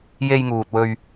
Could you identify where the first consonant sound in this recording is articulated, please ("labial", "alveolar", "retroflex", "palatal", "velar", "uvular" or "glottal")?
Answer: palatal